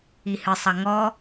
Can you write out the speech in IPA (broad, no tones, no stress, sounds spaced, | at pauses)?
i h ɨ sˤ ɐ ŋ ɔ